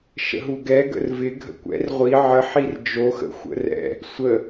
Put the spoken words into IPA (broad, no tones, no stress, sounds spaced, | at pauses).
ʃ ə̰ ɦ u ɡ ɛ ɡ ə̰ r v ɪ ɡʱ ə̰ kʷ ɛ̰ r ʁʷ i ʕ ə ħ i r d͡ʒ o x ə̰ xʷ ə̰ r ɛ̰ | sʷ ə